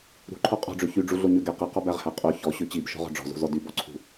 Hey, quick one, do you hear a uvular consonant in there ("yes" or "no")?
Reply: yes